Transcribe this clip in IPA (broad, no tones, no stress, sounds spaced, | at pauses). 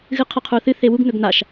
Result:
ɣ ɨ qʰ ɐ qʰ u θ ɨ θ e w u ɡ n̪ ɵ ɡ n̪ a ʃ